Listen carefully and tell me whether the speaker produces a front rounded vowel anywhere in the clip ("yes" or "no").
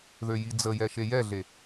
yes